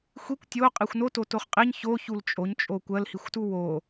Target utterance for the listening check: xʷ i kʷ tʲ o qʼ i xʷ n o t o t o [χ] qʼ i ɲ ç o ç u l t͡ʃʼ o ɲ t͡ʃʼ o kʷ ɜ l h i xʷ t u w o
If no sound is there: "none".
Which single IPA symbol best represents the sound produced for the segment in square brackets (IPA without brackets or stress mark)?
χ